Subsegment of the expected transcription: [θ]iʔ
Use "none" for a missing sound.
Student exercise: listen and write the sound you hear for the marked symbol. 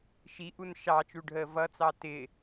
ʃ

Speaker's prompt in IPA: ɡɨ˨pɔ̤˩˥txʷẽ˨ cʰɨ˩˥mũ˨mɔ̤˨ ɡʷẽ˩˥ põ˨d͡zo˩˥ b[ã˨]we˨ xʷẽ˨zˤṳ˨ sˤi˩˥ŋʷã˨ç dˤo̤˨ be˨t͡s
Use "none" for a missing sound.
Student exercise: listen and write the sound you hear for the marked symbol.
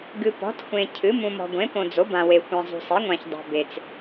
ã˨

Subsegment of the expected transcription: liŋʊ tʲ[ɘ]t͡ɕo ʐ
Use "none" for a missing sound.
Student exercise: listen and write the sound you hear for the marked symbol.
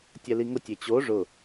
e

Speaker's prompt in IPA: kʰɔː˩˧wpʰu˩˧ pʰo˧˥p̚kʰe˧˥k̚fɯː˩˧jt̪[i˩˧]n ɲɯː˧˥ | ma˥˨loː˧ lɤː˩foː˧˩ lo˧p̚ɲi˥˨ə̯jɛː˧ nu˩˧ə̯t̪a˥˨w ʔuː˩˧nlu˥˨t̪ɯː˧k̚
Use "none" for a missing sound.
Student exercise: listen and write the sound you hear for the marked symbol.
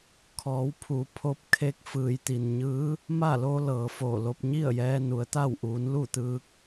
i˩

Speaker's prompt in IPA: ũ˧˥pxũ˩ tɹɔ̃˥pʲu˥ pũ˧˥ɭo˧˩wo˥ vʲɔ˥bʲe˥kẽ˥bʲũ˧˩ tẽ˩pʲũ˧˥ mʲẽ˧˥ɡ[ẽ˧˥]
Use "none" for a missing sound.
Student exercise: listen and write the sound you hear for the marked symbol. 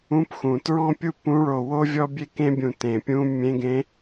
ẽ˧˥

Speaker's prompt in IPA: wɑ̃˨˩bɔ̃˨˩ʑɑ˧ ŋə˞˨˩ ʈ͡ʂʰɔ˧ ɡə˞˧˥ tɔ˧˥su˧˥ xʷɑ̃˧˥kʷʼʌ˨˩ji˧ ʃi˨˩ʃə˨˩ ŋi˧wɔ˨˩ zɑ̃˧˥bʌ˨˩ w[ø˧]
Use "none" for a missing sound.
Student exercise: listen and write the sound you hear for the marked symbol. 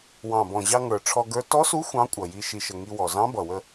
ə˧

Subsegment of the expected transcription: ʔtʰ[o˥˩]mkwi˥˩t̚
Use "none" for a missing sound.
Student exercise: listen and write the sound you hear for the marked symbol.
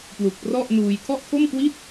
o˥˩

